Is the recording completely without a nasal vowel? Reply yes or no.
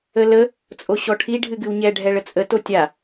yes